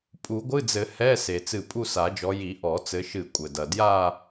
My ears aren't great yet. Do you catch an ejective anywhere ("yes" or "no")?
yes